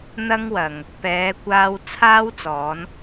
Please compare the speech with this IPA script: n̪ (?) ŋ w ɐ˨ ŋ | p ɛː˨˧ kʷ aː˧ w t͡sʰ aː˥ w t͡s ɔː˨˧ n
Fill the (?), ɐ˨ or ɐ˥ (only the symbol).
ɐ˥